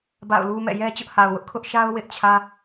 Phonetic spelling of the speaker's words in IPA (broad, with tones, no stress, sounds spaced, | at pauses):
b a̰˦˨ ʊ̯ l u˦ m ɛ̰˦˨ j ɛ˦ t͡ɕ ʊ˦ ʔ h a˨ ʊ̯ w ʊ˦ ʔ kʰ ʊ˦ ʔ ʃ a˦ ʊ̯ w ɪ˦ ʔ t͡ɕʰ ä˦